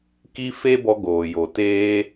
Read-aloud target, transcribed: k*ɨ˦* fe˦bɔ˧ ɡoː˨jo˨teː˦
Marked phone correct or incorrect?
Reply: incorrect